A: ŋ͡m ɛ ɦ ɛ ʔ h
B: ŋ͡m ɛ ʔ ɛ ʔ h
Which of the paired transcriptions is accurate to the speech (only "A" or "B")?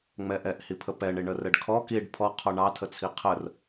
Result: B